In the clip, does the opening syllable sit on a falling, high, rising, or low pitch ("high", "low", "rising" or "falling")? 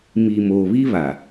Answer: low